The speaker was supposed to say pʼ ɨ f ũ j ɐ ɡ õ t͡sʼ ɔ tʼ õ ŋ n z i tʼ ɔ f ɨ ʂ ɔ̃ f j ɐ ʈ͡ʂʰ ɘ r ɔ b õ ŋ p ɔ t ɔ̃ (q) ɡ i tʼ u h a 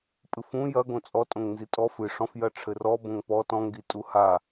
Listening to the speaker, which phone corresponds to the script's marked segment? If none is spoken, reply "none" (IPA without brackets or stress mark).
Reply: ŋ